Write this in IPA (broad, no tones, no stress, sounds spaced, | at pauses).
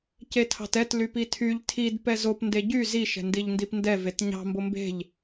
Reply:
c e tʰ ɑ̤ t ɛ t l y p i tʰ y ʎ tʰ i d p ɛ z o p n d e ɟ y z i ʃ ɛ̤ n d i ʎ n d i p n d ɛ v e t ɲ ɑ̤ m b o m b e̤ ʎ